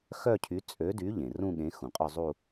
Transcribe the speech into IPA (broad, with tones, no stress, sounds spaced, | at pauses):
x œ˥˧ cʰ y˨˥ t͡sʼ ø˨˥ d y˨˥ ʎ ẽ˩ r ũ˥˧ ɠ ẽ˨˥ x ũ˩ qʼ œ˥˧ zˤ u˥˧